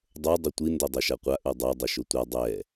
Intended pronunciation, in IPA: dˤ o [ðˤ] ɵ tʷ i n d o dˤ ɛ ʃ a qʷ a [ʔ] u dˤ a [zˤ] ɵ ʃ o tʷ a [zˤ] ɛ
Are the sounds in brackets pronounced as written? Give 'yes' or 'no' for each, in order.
no, yes, no, no

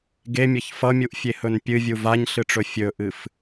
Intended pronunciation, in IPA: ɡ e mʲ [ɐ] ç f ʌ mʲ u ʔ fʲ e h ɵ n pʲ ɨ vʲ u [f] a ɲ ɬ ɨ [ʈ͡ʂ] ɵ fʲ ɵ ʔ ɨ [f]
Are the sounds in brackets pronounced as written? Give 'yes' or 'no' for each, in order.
yes, no, yes, yes

